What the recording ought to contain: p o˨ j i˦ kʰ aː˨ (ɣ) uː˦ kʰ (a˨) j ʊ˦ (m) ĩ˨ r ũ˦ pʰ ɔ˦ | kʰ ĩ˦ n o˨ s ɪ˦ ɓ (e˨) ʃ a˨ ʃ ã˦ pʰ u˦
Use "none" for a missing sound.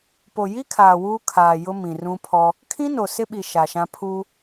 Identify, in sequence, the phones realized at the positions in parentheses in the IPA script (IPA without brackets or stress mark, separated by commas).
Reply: w, aː˨, m, i˨